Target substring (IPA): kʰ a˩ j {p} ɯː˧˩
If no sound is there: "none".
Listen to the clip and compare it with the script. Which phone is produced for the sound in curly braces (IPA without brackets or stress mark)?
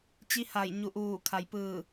p